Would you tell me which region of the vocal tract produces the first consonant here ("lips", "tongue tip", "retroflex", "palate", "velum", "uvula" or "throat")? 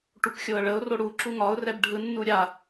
retroflex